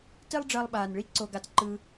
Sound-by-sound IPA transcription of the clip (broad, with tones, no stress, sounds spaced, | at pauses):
t i˥ lˠ ɖ͡ʐ əː˧ lˠ ɓ aː˩ n ɭ i˥ ǀ o˧ ɡ a˧ t ǃ ɯ˧